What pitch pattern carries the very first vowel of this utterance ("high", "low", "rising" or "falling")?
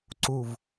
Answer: low